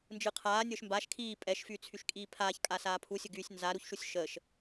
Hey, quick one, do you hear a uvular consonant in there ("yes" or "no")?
yes